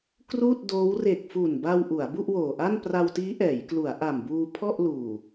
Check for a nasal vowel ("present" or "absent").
absent